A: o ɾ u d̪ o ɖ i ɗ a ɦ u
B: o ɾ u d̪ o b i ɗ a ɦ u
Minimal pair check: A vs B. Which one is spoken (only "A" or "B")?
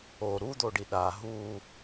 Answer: A